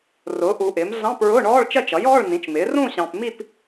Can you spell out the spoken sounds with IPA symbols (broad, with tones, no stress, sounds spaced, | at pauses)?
r ʊː˩˥ ʔ u˨ ʔ ɪː˩˥ m ɮ ɑ̃˧˥˧ p ɹ ʊː˧˥˧ ɳ ɔː˧˥˧ ɭ t͡ʃ ɜ˥˧ t͡ʃ ʌ˩˥ j ɔː˧˥˧ ɭ n ĩ˩˥ t͡ʃ m ɪː˩˥ r ũ˥˧ ɕ ɑ̃˨ p m i˥˧ p